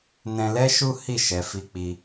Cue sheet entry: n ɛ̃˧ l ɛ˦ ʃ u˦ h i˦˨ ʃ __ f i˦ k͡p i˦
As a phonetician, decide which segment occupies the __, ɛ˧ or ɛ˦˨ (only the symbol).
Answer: ɛ˧